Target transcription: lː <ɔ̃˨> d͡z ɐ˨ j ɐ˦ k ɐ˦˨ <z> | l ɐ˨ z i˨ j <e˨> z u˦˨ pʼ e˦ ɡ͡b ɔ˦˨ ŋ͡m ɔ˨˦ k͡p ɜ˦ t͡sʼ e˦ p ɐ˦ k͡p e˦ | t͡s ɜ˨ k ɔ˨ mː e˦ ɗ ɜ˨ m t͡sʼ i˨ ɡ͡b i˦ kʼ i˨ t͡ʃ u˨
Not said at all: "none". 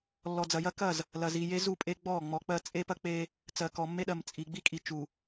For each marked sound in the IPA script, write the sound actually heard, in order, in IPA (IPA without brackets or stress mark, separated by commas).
ɔ˨, z, e˦